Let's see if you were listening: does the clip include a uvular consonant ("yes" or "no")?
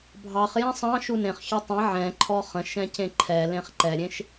yes